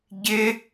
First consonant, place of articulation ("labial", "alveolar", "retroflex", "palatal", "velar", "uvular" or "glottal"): palatal